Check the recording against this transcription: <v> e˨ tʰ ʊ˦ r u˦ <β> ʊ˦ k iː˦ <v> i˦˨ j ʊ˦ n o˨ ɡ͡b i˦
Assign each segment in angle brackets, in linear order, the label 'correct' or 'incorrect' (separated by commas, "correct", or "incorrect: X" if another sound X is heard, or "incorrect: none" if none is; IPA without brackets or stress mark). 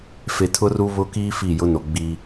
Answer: incorrect: f, correct, incorrect: f